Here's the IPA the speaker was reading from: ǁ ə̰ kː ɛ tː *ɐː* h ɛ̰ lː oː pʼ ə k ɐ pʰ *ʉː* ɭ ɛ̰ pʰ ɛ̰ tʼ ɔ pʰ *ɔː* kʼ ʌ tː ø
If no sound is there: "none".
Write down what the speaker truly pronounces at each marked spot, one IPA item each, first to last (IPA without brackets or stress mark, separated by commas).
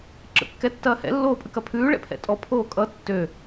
ɐː, ʉː, oː